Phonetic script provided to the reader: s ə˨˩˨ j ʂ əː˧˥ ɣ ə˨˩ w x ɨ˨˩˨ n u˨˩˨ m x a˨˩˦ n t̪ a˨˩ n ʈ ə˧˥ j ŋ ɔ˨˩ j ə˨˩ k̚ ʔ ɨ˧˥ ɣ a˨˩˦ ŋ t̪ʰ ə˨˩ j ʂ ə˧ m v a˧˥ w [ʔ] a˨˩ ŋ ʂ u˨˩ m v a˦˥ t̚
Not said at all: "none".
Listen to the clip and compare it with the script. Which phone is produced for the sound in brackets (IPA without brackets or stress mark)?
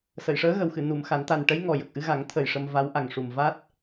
ʔ